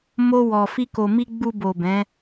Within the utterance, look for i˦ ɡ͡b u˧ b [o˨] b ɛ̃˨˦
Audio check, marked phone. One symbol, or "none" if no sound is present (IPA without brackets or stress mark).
o˨